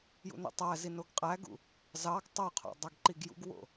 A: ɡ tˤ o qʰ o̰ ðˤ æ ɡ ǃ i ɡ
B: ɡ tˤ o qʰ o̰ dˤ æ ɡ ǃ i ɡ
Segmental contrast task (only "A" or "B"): B